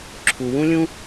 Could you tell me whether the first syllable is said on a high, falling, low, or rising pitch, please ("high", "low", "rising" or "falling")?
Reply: low